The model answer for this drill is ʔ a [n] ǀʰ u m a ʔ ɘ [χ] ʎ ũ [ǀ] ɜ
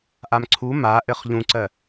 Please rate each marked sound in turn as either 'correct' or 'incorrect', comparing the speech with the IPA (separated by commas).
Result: incorrect, correct, correct